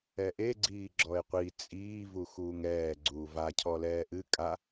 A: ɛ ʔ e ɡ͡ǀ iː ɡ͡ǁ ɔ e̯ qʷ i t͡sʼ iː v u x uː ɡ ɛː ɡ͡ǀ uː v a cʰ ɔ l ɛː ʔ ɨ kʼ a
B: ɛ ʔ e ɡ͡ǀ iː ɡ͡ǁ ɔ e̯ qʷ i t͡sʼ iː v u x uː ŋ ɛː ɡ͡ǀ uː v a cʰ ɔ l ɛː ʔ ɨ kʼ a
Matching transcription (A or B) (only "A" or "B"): B